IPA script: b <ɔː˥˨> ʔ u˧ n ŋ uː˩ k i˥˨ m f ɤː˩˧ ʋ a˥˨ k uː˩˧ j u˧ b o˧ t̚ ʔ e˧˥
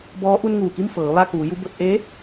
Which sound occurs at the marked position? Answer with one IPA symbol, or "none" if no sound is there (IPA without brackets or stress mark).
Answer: ɔː˧˥